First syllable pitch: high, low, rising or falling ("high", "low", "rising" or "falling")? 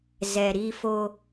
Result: low